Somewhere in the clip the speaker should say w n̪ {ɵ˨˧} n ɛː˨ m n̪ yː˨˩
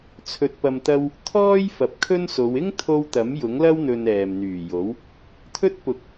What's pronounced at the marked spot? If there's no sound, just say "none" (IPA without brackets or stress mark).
ɵ˨